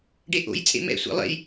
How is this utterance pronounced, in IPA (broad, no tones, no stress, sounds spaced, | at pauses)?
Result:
ɖ e ʔ o̰ j t͡sʼ ḛ m ɛ̰ sʷ ɛ̰ lˠ ḛ j